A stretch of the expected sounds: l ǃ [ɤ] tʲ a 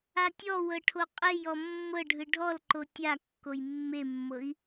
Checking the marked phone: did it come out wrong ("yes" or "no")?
yes